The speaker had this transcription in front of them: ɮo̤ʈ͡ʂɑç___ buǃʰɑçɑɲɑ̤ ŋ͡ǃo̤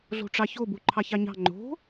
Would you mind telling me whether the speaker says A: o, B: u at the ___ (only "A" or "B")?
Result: A